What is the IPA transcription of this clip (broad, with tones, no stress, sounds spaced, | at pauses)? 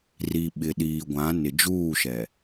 r i˨ ɓ ɪ˨ ɗ iː˨ ɡʷ ã˨˦ n ɪ˨ d͡ʒ uː˦˨ ʃ ɛ˨